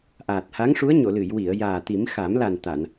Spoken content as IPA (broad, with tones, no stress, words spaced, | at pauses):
ʔaː˨˩t̚ha˧˥ŋʂu˧˥ə̯ ɲo˨˩˨lɨ˨˩˨jwi˨˩˨ə̯ jaː˨˩t̪i˨˩˦mxa˨˩˦m la˨˩n t̪a˨˩˨n